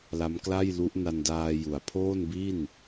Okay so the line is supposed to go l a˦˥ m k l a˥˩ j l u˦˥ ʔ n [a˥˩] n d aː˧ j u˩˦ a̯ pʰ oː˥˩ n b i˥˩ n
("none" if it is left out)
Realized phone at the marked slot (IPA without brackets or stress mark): a˧